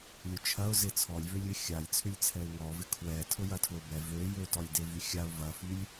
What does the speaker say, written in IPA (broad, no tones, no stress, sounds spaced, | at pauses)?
lʲ ʊ t͡ʃʰ ɐ ʊ̯ z ɪ t͡sʰ ɔ lʲ v ø lʲ ɪ xʲ a lʲ t͡sʰ ʏ lʲ t͡sʰ ɛ ɪ̯ ŋ ɔ v ɪ kʰ w ɛ tʰ ʊ j ɐ tʰ l ʊ b ɛ v ø j ø t ɔ lʲ d e v y xʲ a ʊ̯ v ɐ f y lʲ